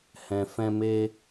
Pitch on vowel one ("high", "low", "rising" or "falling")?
low